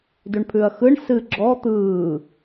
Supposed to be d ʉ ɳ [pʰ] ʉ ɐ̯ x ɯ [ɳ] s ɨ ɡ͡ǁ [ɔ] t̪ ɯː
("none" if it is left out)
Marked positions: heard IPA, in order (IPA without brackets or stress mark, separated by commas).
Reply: pʰ, ɳ, ɔ